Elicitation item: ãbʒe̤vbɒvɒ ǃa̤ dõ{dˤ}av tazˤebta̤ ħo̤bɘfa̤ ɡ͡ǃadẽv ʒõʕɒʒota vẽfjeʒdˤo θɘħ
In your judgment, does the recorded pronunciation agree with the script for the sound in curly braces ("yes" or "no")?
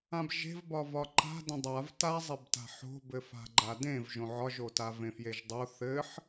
yes